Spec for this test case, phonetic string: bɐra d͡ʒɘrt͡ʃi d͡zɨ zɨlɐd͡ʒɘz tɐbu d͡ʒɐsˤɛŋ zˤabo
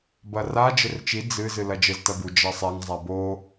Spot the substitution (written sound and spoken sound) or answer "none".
none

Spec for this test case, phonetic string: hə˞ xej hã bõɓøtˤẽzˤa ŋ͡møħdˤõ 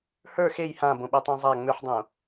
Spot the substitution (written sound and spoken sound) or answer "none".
none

